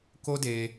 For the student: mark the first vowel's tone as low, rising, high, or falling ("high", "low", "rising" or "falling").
high